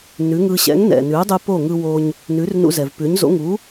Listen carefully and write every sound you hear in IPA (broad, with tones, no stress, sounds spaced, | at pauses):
n ʉ˩˥ ŋ ɯ˧ ɕ ɛ̰˩˥ ŋ n ɛ̰˩ n ʉ˩˥ dˤ ʉ˧ p o˥˩ ŋ ɯ˧ w o˧ ɲ | n ʉ˩˥ r n ṵ˧ z ɛ˩ v p ʉ˩˥ ɲ z o̰˩˥ ŋ u˩˥